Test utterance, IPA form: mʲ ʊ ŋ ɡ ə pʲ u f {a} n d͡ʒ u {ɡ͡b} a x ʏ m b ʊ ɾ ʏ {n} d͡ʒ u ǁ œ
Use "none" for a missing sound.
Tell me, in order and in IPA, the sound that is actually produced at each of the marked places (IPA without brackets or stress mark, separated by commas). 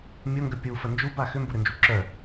ə, b, n